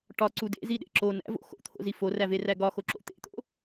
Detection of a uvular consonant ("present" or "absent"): absent